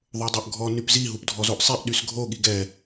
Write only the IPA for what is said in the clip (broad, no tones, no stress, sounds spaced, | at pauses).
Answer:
ðˤ o dˤ o ʔ ɡʱ ɔ n y p z i ɦ u p dʱ ɔ z o ʔ sˤ i ʔ ɗ y s ɡʱ o ɠ i ɡ ɛ